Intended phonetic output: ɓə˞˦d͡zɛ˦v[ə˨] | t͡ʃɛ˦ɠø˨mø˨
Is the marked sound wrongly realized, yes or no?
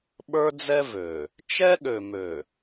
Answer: yes